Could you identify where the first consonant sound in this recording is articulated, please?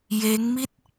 palatal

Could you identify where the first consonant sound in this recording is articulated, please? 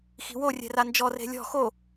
velar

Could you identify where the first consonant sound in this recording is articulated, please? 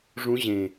retroflex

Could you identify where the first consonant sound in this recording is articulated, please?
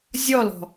alveolar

